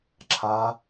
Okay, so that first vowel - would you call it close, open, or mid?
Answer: open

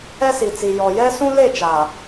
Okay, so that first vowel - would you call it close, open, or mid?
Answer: mid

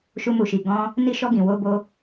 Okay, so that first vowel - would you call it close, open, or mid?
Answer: close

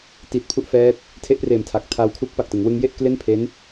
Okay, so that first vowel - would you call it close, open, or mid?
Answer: close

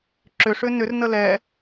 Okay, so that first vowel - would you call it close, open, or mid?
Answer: close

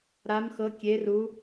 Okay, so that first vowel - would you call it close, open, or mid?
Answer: open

